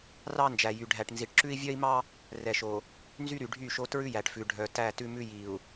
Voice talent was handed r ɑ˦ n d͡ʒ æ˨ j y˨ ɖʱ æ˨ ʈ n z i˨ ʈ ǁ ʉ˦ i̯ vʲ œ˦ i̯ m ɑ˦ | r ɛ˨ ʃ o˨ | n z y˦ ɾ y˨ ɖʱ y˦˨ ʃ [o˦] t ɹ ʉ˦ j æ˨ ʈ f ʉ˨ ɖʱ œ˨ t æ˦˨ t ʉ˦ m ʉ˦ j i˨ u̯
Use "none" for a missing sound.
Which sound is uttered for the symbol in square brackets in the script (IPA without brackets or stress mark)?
o˦